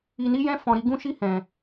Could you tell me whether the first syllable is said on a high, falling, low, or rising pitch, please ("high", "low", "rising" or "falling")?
low